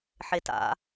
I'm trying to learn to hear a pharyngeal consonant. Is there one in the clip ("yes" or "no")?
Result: yes